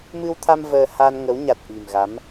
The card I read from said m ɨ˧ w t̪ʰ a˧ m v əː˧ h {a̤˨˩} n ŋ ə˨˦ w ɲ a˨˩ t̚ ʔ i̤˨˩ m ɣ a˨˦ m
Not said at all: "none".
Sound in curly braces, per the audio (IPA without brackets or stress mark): a˧